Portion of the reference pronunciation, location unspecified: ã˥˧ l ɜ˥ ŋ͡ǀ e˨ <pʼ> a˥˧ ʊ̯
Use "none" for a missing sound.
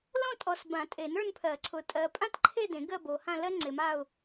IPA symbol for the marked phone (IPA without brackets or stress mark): m